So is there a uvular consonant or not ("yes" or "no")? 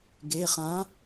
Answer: yes